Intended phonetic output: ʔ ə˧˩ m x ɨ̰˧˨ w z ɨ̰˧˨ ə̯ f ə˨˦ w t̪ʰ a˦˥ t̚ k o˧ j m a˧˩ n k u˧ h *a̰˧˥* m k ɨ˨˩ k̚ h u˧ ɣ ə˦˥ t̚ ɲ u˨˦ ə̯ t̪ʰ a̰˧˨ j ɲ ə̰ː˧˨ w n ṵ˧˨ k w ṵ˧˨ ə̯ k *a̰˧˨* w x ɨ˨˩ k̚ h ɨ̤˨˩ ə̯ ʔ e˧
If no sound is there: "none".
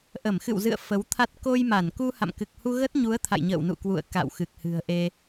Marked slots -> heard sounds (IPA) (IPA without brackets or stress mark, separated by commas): a̰˧˨, a̰˧˨